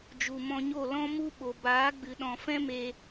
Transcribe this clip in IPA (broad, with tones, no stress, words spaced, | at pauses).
d͡ʒu˨mɔ̃˧ɲo˦˨ lɔ̃˦mu˦ ɓo˨baː˨˦ɡ͡bɨ˨ ɗɔ̃˨fɛ̃˦ me˧